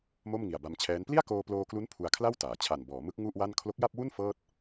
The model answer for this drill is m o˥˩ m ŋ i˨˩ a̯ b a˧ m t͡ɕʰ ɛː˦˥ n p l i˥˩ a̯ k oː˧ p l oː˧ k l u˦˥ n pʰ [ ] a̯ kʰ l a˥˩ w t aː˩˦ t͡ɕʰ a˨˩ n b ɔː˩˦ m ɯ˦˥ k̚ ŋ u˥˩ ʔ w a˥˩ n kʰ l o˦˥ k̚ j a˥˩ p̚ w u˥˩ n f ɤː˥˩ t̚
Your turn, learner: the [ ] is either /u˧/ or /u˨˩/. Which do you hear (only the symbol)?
u˧